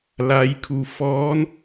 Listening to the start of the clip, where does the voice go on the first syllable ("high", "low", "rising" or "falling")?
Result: rising